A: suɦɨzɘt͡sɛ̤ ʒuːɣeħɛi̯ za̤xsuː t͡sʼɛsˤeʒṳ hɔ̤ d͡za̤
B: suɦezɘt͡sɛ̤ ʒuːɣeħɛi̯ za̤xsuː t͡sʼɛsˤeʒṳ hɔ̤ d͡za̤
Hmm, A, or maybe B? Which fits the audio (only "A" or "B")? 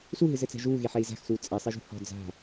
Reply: A